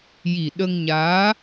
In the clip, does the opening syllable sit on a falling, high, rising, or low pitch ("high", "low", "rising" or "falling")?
low